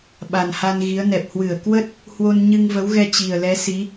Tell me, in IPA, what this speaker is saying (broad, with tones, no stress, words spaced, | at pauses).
ɓa˨˩nha˧nɣi˨˦ə̯nɛ˨˩p̚ hwɨ˧˩ə̯ kwə˦˥t̚ | hwo˧nɲɨ˧ŋvə˨˦wɣɛ˧ t͡ɕi˨˩ə̯lɛ˨˦ si˨˦